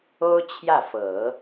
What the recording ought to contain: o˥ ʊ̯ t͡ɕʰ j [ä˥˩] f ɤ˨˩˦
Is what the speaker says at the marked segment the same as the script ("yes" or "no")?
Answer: yes